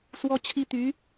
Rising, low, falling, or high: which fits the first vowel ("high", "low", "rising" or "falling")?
high